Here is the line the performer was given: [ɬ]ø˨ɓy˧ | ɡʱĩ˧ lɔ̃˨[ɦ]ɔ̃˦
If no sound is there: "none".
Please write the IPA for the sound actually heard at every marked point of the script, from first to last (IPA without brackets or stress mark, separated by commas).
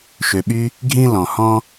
ʃ, h